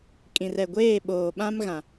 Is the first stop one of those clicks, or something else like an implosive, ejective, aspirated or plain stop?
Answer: ejective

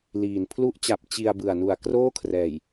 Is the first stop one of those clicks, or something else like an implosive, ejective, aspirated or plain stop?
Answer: aspirated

